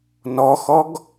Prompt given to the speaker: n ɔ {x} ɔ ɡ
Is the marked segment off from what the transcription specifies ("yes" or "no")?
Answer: no